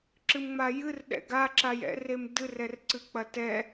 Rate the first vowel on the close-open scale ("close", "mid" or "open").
close